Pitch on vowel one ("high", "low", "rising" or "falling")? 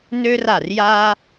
high